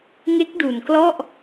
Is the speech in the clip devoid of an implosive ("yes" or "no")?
yes